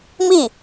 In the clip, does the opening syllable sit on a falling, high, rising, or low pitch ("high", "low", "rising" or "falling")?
falling